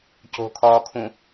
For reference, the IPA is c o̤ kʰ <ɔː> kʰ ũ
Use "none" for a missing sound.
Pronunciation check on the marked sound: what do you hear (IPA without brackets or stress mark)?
ɔː